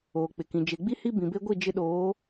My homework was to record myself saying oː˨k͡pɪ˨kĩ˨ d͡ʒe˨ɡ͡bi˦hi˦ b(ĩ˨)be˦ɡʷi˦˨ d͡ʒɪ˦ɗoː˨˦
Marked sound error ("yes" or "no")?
no